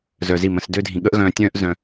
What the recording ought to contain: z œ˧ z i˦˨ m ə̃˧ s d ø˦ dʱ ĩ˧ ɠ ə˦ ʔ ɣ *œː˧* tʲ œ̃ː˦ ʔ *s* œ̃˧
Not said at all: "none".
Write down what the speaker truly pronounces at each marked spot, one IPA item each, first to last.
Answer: œ̃ː˧, z

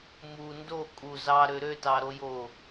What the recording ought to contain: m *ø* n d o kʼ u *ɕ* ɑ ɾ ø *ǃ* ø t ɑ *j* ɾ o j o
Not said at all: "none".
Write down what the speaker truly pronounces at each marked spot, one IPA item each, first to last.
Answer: u, z, ɾ, none

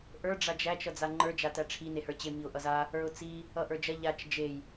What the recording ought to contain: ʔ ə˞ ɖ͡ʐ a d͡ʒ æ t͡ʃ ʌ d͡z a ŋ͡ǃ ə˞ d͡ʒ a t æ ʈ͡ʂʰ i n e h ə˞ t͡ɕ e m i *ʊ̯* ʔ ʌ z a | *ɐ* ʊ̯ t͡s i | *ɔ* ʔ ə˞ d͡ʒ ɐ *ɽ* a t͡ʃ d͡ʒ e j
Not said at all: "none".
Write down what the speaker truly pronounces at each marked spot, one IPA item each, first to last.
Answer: ʊ̯, ə˞, ʌ, ʎ

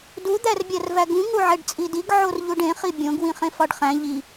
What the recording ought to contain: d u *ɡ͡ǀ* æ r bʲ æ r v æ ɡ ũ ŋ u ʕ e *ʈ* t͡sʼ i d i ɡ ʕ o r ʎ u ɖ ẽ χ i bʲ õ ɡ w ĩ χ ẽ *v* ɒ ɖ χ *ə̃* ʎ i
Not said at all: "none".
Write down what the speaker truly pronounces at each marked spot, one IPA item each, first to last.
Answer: d̪, ɖ, f, æ̃

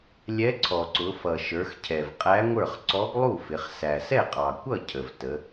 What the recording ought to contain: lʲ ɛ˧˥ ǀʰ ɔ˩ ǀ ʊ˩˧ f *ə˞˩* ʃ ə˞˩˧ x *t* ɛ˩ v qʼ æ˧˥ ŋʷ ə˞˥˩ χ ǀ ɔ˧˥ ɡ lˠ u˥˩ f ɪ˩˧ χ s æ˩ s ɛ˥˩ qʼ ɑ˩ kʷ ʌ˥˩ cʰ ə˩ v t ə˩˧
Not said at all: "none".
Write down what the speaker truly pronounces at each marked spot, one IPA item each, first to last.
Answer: ʌ˩, cʰ

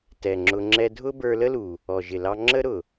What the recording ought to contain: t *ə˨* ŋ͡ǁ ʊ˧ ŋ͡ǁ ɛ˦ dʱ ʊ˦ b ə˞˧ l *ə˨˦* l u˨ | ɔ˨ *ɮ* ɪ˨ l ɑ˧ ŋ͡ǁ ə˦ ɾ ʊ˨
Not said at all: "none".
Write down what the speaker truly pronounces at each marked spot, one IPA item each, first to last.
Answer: ɛ˨, ə˦, ʒ

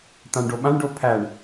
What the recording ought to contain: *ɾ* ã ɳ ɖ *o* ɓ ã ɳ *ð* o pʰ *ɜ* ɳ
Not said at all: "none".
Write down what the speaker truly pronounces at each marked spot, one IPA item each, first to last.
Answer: t̪, o, ɖ, æ

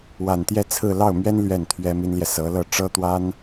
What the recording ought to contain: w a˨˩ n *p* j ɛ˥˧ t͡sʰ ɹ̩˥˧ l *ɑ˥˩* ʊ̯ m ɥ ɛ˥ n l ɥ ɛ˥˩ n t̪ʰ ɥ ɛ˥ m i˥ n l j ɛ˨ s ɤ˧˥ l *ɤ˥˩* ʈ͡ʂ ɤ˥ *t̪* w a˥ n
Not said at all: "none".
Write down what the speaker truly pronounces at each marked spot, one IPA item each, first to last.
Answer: t̪, ɑ˥˩, ɤ˥˩, t̪

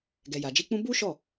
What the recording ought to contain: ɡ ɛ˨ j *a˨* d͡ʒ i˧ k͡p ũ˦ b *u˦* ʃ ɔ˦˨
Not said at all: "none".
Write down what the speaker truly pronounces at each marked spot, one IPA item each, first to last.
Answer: a˨, u˦

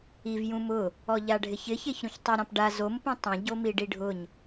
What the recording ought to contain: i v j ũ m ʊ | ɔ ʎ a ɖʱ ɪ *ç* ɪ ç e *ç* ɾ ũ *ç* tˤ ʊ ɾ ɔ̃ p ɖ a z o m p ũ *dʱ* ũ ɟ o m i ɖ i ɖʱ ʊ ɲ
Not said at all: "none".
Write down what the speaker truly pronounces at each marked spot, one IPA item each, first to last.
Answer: ç, ç, ç, tˤ

